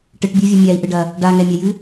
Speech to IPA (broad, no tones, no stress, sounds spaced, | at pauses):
ʈ ɨ ʈ bʲ u vʲ ɐ mʲ a i̯ ʔ ɨ ɖ ɐ | ɖ a ŋ ɛ mʲ a j ɨ